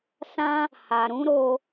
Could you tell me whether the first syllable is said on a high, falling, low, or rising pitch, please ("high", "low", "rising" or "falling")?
high